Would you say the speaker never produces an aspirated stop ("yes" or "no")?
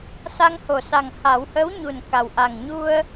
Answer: yes